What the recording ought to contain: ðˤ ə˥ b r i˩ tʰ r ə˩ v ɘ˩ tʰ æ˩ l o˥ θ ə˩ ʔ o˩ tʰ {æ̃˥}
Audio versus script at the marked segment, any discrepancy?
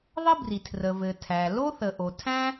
no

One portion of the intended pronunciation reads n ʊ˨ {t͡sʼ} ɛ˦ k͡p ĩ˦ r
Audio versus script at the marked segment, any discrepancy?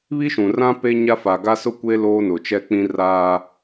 yes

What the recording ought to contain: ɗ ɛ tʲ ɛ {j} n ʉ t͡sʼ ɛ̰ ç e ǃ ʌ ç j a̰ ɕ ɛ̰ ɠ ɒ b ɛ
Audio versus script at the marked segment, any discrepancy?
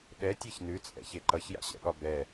yes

